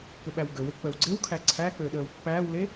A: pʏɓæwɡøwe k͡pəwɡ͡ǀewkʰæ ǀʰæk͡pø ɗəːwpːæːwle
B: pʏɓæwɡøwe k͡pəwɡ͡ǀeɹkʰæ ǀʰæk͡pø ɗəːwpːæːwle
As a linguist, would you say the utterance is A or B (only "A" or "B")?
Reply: A